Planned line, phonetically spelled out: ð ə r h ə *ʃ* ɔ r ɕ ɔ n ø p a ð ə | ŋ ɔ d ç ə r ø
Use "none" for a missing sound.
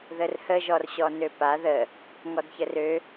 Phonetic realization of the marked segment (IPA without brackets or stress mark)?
ʒ